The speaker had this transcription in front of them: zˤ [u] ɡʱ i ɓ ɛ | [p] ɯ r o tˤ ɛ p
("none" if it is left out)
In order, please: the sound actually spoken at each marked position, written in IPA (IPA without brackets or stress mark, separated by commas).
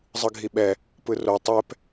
ɯ, p